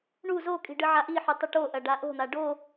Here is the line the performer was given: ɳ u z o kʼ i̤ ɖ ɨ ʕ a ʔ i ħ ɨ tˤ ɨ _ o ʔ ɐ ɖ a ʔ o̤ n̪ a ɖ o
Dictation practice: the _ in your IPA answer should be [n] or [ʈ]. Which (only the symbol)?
ʈ